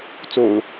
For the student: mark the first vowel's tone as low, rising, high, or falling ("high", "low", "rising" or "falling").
low